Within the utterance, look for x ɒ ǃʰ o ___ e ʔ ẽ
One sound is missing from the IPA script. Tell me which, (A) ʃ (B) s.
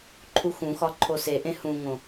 B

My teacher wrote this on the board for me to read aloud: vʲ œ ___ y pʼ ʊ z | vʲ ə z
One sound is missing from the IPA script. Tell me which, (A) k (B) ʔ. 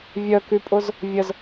A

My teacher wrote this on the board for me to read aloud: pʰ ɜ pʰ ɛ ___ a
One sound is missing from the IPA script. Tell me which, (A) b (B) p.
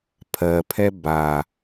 A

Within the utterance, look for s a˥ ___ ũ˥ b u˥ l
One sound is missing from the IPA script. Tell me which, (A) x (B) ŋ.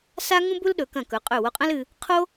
B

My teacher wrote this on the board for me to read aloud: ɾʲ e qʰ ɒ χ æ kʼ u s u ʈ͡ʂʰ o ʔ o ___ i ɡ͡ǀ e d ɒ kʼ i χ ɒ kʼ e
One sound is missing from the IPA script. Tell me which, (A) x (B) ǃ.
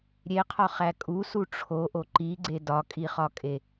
B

